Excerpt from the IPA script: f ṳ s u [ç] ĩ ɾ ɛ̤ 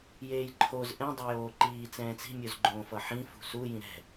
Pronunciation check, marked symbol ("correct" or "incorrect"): incorrect